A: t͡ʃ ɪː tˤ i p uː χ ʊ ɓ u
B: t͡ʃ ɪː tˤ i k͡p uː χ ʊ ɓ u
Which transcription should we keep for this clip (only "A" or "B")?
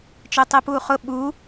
A